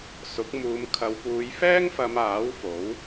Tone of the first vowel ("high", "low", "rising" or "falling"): rising